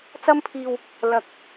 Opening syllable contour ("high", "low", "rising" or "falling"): high